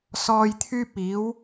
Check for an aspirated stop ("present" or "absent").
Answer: present